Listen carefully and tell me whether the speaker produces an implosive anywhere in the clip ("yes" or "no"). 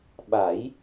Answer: yes